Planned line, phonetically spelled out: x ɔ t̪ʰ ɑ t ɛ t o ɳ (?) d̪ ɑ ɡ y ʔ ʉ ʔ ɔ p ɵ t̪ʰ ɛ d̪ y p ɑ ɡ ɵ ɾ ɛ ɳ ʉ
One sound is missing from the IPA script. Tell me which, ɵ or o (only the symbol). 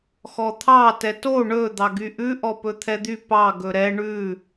ɵ